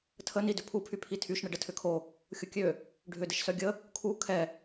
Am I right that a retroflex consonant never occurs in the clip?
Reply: no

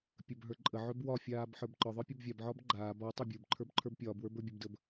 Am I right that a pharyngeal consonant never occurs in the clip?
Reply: no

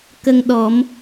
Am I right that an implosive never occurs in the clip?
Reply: no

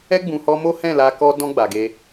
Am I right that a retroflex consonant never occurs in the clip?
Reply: yes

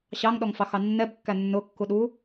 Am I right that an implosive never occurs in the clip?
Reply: no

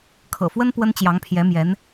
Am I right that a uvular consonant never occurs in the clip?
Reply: yes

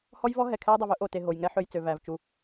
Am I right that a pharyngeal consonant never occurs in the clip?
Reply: no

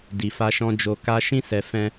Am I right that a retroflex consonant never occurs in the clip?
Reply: yes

